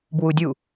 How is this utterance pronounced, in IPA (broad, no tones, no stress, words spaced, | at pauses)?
bwudʲu